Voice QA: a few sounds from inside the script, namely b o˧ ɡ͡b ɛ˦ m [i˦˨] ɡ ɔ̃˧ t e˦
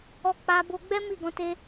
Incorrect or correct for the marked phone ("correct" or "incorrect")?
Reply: correct